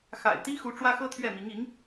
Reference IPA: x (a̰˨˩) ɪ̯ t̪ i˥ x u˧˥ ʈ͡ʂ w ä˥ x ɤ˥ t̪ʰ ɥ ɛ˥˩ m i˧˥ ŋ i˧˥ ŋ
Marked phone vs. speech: correct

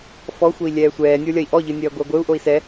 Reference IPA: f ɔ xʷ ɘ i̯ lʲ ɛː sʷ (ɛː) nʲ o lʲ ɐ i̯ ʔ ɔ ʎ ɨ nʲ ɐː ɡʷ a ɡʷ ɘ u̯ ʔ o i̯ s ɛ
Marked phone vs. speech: correct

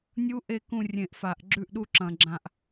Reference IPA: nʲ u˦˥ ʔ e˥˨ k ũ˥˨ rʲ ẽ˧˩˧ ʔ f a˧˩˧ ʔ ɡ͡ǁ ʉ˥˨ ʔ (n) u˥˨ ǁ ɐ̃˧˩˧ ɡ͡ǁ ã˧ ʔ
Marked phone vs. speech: incorrect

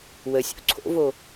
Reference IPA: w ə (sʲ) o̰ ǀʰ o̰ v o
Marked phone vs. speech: correct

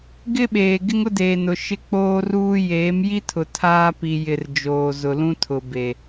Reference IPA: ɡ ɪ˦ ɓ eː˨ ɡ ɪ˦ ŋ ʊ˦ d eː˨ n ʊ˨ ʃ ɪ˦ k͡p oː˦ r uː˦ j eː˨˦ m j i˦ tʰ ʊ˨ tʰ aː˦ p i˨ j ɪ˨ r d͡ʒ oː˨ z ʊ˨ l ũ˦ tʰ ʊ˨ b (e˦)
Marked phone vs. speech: incorrect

